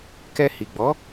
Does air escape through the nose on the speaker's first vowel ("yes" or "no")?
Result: no